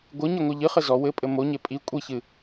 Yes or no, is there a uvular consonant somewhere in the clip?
yes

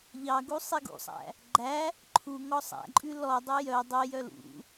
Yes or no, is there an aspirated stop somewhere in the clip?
yes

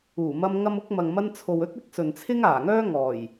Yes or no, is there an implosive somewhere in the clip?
no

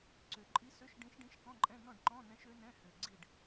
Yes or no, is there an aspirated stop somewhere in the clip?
no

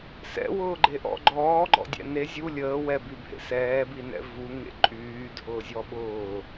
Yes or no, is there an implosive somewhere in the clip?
yes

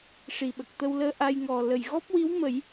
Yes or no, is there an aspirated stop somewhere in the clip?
no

